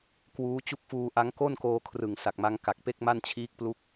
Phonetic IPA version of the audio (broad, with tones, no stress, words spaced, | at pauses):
kwuː˦˥t͡ɕu˦˥k̚fuː˧ʔa˦˥ŋ ko˥˩nkoː˧kʰrɯ˨˩ŋ sa˨˩k̚ma˦˥ŋ ka˨˩k̚pe˥˩k̚ma˥˩n t͡ɕʰiː˦˥k̚plu˦˥k̚